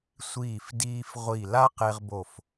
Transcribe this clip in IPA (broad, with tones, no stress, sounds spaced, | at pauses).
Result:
sʷ iː˧˩ f d iː˧ f ʁʷ i˧˩ l a˦˥ q e˧ ʁ b o˧˩ f